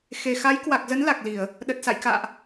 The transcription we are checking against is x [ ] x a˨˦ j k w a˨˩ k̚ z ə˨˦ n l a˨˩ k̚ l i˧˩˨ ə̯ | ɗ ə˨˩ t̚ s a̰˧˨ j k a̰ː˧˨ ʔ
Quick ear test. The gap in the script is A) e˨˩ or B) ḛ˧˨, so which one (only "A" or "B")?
A